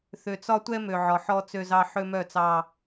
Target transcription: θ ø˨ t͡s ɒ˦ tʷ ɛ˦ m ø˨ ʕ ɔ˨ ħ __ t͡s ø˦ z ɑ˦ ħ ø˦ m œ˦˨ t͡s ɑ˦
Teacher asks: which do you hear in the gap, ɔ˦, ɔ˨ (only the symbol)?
ɔ˦